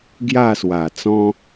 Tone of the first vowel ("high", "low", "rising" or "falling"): falling